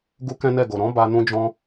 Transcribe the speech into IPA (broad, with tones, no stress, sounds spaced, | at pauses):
ɡ u˦ k ɛ̃˦ n ɛ˦˨ ɡ o˨ ɾ ɔ̃˨˦ b a˧ n ũ˧ d͡ʒ ɔ̃˧